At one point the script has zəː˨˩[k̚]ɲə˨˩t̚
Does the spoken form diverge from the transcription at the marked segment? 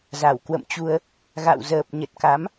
yes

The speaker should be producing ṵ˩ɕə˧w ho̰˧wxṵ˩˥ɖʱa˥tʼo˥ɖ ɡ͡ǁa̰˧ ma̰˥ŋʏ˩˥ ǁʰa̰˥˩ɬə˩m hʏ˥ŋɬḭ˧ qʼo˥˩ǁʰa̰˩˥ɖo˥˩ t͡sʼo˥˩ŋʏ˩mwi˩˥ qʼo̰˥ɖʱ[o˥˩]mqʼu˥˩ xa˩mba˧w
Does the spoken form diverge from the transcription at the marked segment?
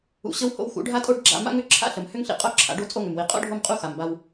no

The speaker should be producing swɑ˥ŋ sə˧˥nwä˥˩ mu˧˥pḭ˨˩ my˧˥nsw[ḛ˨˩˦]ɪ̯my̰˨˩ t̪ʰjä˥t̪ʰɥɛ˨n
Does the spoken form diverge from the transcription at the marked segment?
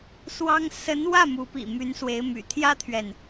yes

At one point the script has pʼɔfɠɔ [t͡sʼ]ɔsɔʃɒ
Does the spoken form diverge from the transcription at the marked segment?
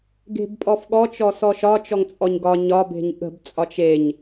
yes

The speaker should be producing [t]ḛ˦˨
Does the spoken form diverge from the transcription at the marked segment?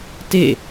no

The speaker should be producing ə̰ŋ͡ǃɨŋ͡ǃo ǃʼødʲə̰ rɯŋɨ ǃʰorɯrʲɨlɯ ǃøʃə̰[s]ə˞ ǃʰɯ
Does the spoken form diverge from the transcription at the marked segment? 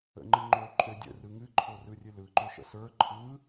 no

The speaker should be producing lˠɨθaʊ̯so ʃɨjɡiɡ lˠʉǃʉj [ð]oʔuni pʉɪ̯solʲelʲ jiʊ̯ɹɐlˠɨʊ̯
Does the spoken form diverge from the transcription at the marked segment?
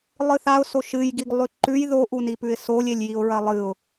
no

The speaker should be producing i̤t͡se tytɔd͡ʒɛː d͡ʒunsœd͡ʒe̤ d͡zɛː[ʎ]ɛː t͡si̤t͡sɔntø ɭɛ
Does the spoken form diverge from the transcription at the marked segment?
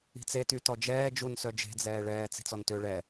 yes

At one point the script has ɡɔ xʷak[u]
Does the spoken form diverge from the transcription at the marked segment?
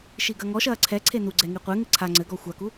no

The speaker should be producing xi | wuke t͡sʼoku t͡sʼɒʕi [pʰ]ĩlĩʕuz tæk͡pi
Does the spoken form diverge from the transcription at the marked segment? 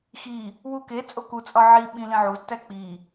yes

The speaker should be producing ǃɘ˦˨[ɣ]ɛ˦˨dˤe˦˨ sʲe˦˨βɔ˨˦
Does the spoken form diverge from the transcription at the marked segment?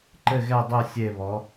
no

